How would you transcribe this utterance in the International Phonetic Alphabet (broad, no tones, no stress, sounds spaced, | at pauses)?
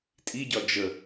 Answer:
tʼ i ɟ ɒ d͡ʒ ə